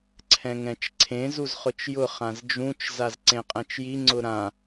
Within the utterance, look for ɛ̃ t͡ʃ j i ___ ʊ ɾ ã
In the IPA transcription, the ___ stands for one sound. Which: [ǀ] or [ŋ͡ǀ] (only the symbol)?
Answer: ŋ͡ǀ